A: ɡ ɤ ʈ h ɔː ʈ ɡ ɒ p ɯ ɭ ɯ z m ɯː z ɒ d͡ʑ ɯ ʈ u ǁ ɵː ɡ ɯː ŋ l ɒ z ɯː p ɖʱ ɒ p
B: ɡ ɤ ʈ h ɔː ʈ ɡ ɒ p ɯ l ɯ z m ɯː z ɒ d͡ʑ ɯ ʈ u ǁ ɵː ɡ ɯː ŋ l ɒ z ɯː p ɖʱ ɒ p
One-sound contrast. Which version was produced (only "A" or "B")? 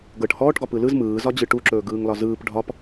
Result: B